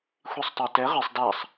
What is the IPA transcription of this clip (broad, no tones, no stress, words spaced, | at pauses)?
xʷisˤtˤatɛ ʁisˤ dasˤ